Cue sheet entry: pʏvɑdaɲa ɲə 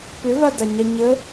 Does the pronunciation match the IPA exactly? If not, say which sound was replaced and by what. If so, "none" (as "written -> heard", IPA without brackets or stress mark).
ɑ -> a